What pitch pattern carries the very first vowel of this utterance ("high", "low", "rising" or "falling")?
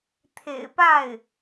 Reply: low